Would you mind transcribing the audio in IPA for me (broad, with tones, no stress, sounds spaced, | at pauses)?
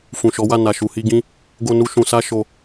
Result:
f ũ˨ ʃ ɔ˨˦ w a˦˨ n a˨ ʃ u˨ h i˧ ɡ ĩ˦ | ɡ o˧ n u˧ ʃ ũ˨ s a˧ ʃ o˧